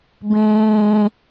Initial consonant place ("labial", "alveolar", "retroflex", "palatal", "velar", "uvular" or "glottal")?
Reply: labial